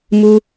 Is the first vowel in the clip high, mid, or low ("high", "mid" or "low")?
high